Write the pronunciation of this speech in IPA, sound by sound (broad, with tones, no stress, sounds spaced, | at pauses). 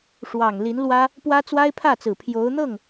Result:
ʂ w ɑ˨˩ ŋ l i˧˥ n l w ä˥ | p w ä˥ t͡s w a˥ ɪ̯ pʰ ä˥˩ t͡s ɹ̩˨˩ pʰ j o˧˥ ʊ̯ n̪ ɤ˥˩ ŋ